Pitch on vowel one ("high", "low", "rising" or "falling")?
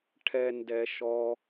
low